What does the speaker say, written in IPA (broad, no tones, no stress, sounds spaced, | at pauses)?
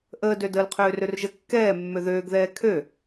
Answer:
ʔ əː d ø d əː l qʰ øː r ø r ʒ ə kː ɛː mː ø ð øː ɡ ð ɛː kʰ ø